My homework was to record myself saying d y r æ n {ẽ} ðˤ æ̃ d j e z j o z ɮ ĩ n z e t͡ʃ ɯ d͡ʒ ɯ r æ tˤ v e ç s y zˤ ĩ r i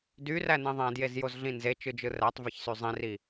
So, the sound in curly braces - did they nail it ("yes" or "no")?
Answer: yes